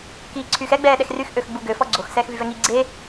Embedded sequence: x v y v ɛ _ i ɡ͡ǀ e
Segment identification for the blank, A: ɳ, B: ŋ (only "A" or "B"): B